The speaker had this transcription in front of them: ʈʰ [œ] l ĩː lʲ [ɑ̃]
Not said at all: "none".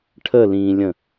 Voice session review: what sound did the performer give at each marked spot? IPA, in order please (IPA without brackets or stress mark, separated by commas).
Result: ə, ə̃